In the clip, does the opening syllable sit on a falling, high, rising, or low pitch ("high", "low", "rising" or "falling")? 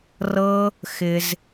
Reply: high